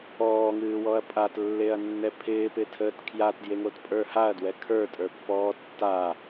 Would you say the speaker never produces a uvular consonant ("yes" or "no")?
yes